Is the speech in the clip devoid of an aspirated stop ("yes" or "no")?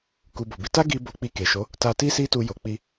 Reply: yes